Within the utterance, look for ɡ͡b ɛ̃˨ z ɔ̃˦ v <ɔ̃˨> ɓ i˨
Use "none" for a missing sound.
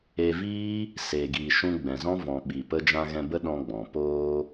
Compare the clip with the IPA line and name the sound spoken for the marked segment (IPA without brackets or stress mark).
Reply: ɔ̃˨